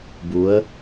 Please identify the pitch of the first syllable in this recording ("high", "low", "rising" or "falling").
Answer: rising